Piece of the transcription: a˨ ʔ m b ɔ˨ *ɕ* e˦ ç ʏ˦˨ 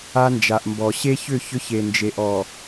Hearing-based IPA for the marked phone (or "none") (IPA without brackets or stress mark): ɕ